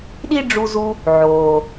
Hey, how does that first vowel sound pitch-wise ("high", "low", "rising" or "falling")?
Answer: high